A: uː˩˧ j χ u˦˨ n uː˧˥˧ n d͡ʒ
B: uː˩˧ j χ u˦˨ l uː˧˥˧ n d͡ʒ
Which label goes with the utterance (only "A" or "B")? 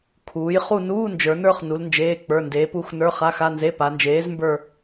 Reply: A